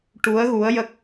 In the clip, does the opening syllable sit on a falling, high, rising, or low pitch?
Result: rising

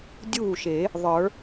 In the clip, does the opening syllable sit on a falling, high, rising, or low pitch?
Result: falling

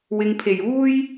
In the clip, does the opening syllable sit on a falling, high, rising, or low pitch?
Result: low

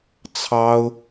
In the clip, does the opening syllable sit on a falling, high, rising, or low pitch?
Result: high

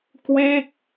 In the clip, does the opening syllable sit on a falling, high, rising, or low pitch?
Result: falling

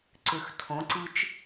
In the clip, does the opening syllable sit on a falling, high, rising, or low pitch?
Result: low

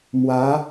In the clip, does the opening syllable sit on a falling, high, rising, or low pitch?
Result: rising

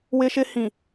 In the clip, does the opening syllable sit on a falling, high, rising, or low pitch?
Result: high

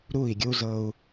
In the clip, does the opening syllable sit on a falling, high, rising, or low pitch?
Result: falling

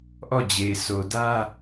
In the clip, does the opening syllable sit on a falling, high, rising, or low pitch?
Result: falling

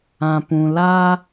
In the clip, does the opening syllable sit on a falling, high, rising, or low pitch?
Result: low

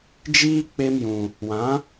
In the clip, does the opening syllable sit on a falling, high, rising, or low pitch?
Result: high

